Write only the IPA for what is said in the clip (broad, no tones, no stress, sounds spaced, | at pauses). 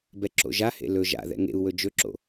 b ɛ ǁ o̰ ʒ a h ḛ l ɵ ʒ a̰ ð ɛ̰ ŋ ḛ u̯ w ɵ d͡ʒ ɵ ǁ o̰